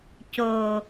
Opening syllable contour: low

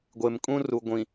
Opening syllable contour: low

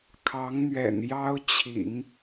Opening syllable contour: rising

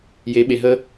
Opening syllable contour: rising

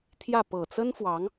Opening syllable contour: falling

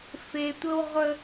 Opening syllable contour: low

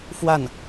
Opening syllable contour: falling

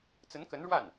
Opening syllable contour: rising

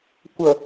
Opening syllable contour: low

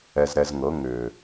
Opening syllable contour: low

